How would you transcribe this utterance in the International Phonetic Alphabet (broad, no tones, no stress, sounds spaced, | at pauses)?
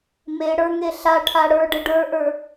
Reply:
m e ɽ ə˞ ŋ e ɬ a ʈʰ a ɽ ə˞ ɖ ə ɖ ə˞ ʔ ə˞